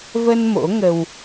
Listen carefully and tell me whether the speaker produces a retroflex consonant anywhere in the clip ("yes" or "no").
no